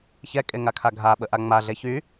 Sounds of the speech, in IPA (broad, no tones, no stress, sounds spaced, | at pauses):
ç ɛ kʼ e ŋ a kʰ a ɡʱ a ɓ ə ʔ a ŋ͡m a ɮ e ç y